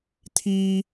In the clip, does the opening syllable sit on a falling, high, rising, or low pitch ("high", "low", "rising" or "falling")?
high